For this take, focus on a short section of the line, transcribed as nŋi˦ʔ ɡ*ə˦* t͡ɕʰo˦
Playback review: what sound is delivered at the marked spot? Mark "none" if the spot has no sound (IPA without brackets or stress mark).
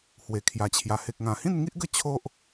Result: ə˥˧